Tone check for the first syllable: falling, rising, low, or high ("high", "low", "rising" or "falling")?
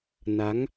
rising